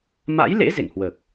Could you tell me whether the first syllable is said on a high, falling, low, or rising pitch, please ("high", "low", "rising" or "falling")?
rising